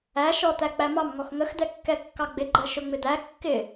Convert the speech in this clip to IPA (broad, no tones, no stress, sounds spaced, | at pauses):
æ ʃ ɔ t̪ æ k͡p æ m ɑ m ŋ ɔ x ŋ ə x d̪ ɛ kː ɛ kː ɑ ɡ͡b ɪ ɡ͡ǃ ɜ ʃ ʊ ŋ͡m ɪ d̪ æ kː ɪ